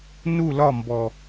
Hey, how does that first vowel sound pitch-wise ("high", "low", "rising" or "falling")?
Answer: falling